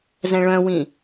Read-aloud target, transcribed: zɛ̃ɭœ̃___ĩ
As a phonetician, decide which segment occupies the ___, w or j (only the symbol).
w